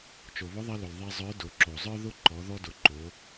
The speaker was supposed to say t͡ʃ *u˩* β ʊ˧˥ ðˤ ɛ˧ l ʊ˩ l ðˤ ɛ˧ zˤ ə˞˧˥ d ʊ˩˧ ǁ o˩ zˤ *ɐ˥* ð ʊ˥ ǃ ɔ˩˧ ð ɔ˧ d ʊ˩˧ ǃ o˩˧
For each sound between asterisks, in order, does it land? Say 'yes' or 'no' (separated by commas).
no, no